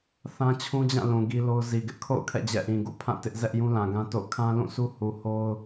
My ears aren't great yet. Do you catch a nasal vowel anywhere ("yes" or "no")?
yes